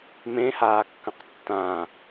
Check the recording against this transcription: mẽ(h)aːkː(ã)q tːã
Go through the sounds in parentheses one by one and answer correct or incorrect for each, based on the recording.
correct, incorrect

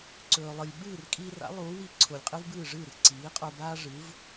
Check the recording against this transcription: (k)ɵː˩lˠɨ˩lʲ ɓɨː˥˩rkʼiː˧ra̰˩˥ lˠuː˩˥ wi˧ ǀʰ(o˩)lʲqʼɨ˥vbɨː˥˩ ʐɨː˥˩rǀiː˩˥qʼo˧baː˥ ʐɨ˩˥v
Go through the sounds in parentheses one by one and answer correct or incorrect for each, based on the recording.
incorrect, correct

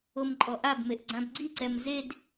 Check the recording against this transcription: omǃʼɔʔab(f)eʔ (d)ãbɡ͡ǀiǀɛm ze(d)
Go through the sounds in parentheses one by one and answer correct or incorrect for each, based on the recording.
incorrect, incorrect, correct

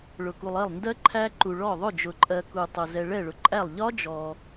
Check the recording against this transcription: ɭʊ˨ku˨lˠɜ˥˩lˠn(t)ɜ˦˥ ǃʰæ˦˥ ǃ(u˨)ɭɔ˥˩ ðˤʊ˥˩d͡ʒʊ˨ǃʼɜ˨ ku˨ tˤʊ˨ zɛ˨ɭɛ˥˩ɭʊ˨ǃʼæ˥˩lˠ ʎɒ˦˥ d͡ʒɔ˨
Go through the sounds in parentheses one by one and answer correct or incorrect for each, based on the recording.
incorrect, correct

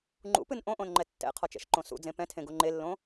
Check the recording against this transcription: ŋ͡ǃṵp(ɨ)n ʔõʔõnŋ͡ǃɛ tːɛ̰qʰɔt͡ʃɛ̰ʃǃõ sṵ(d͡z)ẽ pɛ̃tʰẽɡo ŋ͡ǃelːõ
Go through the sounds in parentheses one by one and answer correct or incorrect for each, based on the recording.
correct, correct

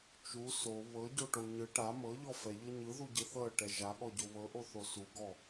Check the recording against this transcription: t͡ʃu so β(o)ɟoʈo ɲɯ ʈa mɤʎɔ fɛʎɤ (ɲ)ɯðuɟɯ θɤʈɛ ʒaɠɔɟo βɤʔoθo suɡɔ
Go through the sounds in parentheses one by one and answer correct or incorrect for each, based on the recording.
incorrect, correct

